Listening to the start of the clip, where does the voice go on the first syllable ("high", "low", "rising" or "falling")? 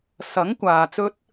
rising